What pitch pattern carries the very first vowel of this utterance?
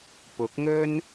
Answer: rising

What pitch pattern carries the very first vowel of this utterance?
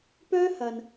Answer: high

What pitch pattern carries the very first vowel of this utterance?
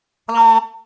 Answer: high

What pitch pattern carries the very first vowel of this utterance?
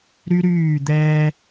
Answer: high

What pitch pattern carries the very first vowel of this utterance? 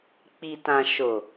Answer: low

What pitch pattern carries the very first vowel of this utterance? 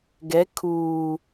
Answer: rising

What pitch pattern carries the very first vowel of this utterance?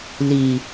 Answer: low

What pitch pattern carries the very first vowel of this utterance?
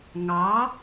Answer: rising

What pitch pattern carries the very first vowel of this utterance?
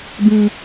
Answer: low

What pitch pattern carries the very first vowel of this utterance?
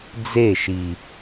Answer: falling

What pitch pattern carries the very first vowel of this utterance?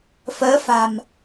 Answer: rising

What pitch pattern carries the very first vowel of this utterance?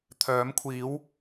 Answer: rising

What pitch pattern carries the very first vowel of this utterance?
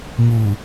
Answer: low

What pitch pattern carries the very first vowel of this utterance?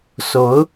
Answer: rising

